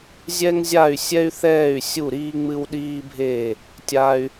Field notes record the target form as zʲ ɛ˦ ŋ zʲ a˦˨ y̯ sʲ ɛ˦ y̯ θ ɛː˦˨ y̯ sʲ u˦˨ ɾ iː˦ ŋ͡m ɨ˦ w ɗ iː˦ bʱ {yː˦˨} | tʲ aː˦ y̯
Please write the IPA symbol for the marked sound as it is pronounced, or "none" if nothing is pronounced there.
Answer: eː˦˨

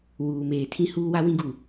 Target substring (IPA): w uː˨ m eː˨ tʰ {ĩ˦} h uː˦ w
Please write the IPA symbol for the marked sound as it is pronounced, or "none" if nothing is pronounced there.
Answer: ĩ˦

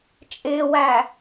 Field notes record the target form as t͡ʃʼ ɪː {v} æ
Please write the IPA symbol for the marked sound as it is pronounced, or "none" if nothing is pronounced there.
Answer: w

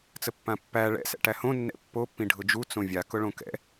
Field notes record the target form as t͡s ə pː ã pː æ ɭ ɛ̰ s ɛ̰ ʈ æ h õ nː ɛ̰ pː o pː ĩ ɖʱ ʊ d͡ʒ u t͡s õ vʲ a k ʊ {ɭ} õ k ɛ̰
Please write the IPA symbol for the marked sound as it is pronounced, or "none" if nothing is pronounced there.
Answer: ɭ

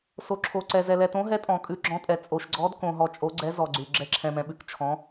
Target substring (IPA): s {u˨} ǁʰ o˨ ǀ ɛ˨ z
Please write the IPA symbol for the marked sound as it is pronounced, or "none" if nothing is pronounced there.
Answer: o˨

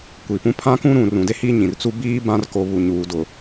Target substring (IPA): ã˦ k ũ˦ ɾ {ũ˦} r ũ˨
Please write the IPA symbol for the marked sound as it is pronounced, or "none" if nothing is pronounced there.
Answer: ũ˨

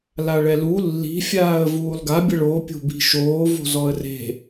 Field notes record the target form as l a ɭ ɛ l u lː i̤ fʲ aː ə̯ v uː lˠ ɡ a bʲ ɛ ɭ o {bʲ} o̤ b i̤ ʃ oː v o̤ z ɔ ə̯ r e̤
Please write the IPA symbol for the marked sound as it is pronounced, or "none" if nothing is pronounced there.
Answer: pʲ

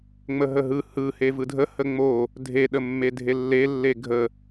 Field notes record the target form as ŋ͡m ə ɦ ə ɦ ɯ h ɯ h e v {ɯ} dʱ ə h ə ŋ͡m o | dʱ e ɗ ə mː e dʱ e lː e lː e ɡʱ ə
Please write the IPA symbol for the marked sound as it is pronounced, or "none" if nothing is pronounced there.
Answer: ɯ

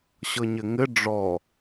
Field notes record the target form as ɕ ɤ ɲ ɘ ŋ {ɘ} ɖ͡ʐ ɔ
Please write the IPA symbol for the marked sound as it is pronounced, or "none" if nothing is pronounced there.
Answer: ɘ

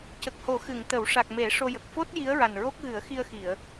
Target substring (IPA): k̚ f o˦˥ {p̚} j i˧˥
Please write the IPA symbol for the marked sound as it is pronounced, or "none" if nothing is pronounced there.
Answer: t̚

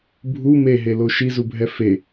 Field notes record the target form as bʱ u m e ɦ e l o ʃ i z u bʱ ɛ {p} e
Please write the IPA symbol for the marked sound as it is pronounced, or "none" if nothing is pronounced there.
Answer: f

